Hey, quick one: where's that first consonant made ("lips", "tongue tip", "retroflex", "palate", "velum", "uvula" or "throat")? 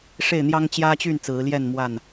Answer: retroflex